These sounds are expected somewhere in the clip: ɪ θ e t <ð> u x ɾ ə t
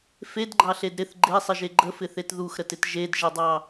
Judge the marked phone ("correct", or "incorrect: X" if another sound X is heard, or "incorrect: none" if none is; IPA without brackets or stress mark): correct